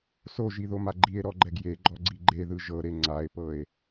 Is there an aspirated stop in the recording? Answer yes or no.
no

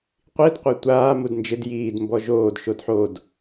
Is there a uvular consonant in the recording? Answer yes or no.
yes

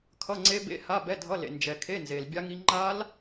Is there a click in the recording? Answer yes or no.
yes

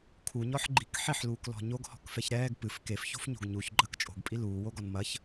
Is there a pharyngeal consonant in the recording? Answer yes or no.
yes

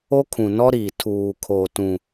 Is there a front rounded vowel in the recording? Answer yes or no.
no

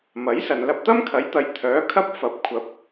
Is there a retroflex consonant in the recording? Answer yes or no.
no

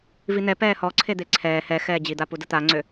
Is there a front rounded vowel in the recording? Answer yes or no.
yes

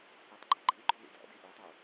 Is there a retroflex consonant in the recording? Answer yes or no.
no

